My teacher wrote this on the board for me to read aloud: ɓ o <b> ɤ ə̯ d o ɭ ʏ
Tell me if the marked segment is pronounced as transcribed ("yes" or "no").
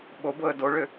yes